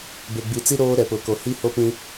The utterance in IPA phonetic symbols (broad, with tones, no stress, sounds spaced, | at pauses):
b e˨ ɡ͡b i˨ t͡s i˦ ɾ oː˦ ɾ ɛ˨ p ʊ˨ k o˨ h i˦ h o˦ p ĩ˦